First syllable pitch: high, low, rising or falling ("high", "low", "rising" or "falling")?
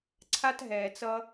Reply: high